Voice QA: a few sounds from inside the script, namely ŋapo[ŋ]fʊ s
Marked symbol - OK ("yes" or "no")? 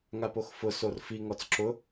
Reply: no